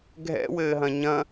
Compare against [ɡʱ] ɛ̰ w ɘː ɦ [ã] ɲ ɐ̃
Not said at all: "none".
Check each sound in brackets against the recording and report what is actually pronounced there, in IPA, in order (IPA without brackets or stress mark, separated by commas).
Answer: ɡʱ, ɐ̃